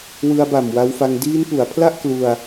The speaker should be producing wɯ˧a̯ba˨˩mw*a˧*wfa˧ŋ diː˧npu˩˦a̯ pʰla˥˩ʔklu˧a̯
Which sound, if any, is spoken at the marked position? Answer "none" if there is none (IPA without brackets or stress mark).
a˧